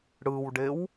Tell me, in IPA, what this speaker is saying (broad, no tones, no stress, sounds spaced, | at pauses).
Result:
ɽ ɯ w ɖ e w